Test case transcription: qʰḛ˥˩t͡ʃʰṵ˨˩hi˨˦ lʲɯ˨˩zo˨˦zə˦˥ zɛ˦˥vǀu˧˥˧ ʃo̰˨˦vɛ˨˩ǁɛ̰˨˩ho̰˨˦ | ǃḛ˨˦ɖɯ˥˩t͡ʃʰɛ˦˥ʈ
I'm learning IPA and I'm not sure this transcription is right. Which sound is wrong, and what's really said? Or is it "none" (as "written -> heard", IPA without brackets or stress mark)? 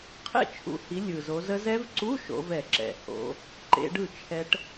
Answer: none